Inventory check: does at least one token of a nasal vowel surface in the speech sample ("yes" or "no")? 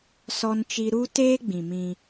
yes